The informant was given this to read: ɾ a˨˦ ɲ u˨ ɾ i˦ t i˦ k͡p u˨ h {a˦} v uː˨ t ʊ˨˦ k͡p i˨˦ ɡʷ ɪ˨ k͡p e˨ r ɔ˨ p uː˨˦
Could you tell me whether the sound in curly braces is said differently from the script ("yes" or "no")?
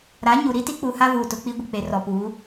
no